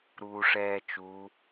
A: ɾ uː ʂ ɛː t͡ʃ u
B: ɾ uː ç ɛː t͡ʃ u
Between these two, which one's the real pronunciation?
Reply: A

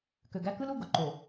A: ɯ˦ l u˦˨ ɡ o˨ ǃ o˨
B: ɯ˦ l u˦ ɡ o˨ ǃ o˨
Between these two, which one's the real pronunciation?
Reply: A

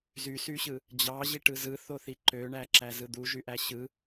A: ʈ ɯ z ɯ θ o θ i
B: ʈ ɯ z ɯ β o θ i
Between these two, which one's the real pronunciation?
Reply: A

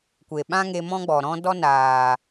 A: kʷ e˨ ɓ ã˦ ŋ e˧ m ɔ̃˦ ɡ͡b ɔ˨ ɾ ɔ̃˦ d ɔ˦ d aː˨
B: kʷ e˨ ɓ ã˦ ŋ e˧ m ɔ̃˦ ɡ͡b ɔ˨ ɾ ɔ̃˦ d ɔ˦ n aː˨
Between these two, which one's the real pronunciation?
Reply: B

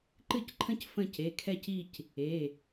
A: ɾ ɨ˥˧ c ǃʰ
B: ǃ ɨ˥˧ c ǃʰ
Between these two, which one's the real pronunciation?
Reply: B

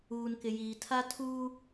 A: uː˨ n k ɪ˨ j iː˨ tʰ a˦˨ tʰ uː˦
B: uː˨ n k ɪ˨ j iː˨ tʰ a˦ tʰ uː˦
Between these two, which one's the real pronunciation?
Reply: B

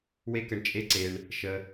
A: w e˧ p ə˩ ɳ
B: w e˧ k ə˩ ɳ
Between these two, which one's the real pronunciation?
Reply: B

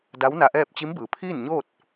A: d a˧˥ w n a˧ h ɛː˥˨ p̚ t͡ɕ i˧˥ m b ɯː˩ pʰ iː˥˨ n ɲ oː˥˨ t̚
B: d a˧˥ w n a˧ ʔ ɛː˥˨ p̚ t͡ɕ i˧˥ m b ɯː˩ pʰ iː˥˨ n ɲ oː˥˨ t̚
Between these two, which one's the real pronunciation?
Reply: B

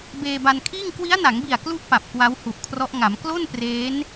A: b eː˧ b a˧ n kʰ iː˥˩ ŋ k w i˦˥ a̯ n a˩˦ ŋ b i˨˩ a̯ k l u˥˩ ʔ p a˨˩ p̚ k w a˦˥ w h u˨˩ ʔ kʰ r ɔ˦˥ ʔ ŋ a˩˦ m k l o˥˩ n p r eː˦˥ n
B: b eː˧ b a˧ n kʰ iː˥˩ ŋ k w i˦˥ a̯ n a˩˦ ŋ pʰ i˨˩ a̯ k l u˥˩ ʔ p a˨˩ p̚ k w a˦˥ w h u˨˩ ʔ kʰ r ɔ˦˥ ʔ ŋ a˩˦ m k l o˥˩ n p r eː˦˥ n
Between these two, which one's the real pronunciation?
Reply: A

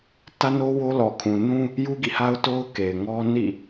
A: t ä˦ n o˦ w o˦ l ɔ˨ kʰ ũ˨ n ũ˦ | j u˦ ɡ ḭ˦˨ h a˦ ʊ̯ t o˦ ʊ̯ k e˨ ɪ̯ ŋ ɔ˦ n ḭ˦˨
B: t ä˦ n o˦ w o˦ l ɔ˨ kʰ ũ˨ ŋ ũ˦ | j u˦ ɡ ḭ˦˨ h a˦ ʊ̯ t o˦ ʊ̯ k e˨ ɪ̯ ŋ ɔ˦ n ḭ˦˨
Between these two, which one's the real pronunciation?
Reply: A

